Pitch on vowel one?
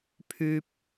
low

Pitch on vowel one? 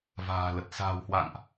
low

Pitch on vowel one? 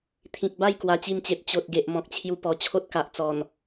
low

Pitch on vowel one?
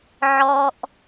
low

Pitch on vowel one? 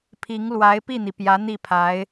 rising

